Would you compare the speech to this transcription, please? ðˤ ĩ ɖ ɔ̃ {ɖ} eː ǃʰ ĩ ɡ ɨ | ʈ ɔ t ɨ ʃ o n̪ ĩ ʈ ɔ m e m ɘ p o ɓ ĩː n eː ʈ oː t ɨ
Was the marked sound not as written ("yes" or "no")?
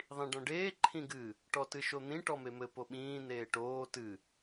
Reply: no